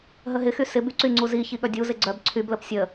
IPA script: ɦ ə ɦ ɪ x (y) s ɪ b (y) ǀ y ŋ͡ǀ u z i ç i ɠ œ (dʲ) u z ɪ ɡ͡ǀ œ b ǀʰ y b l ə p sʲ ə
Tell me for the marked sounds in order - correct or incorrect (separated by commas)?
correct, correct, correct